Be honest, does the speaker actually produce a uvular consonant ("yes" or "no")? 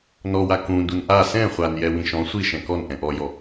yes